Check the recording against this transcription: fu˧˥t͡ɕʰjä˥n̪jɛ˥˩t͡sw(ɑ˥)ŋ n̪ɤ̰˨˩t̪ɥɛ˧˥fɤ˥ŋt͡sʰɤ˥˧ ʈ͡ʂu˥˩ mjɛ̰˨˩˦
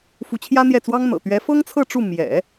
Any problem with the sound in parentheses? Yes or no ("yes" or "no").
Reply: no